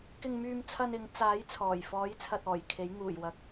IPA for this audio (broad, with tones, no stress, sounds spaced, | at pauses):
k ɪ˧ ŋ m yː˧ m t͡sʰ ɐ˧ n ɪ˨˧ ŋ t͡s aː˨˥ j t͡sʰ ɔː˨˩ j f ɔː˨˥ j t͡sʰ ɐ˧ t̚ ɔː˨˩ j kʰ e˨˥ j ŋ uː˨˩ j w ɐ˨˥ k̚